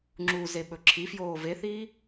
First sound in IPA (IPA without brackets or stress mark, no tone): ŋ͡ǁ